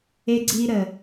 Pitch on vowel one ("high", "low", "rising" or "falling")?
high